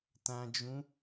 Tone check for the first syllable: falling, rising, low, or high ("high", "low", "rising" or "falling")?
low